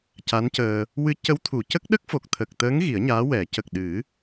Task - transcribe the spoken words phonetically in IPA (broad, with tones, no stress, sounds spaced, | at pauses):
c a˧˥ n c əː˧ | w ɨ˧˥ c ə˧˥ w t̪ʰ u˨˩˨ c ə˦˥ k̚ ɗ ə˦˥ k̚ f o˨˩ k̚ t̪ʰ ə˨˩ k̚ t̪ əː˧˥ ŋ ɣ i˨˩˦ ə̯ ɲ aː˧˥ w ɛ˨˩˦ c ə˨˩ k̚ ɗ ɨ˨˩˦